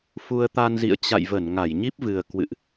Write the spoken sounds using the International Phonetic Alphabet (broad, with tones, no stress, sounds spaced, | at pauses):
f u˧ ə̯ t̪ a˧ n z ḭ˧˨ ə̯ t͡ɕ a̰˧˨ j v ə˧˩ n ŋ a˧˩ j ɲ i˦˥ p̚ v ɨ˨˩ ə̯ k w ɨ̰˧˨ ʔ